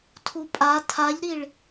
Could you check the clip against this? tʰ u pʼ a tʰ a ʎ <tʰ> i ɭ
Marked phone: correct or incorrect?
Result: incorrect